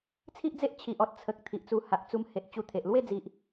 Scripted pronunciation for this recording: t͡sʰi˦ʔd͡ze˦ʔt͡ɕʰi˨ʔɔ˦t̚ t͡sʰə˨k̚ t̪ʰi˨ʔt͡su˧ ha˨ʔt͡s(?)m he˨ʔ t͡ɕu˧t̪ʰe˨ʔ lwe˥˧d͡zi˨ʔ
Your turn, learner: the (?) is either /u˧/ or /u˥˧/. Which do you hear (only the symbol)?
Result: u˧